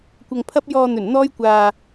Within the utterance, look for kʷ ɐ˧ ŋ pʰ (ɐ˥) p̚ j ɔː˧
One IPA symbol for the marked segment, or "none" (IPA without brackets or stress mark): ɐ˥